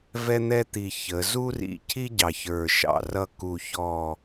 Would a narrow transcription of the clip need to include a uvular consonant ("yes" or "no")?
no